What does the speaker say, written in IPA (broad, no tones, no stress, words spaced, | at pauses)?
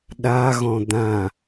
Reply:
ɗaɣɔ̃ d̪ã